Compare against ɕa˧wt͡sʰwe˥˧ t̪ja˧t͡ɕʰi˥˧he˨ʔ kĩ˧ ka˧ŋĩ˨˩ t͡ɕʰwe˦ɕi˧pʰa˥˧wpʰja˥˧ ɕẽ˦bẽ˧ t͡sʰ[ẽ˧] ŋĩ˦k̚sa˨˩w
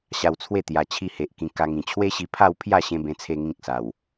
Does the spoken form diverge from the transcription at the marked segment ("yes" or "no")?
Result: yes